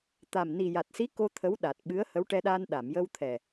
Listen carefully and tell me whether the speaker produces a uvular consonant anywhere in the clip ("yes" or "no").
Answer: no